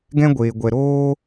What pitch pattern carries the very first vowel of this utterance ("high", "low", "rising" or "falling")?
high